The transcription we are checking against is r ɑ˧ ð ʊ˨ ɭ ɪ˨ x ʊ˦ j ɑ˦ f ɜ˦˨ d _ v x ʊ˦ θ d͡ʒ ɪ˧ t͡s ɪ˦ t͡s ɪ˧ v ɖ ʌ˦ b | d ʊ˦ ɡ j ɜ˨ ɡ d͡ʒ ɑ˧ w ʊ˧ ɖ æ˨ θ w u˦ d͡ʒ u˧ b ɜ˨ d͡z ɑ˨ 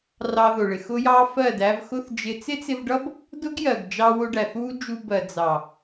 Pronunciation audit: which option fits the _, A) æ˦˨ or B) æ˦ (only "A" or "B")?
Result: B